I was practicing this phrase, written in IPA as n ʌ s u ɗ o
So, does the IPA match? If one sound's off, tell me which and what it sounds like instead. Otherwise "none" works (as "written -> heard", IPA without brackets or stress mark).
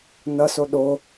u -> o